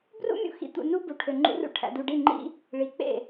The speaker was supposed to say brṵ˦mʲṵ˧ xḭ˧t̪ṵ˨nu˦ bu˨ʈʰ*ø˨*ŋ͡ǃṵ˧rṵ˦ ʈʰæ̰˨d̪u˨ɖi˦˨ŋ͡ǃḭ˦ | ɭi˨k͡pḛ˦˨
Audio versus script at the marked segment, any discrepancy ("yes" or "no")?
no